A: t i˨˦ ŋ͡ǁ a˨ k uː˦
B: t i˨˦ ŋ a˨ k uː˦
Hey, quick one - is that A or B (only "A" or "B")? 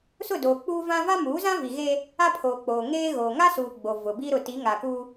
B